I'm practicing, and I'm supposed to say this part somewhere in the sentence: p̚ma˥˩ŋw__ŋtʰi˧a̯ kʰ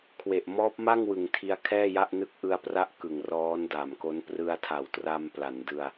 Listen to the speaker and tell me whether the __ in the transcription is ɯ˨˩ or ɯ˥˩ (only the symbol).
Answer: ɯ˨˩